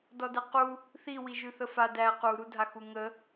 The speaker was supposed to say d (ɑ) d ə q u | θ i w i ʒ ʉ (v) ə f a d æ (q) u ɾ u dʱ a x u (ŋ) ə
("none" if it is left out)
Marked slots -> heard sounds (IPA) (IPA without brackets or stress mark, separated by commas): ɔ, θ, q, ŋ